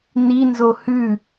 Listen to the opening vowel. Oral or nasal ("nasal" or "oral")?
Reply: oral